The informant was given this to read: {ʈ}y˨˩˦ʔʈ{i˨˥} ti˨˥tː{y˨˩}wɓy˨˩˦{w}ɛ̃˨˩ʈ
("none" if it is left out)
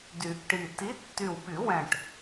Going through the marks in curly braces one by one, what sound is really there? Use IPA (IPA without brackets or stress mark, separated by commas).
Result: d, i˨˩, y˨˩, w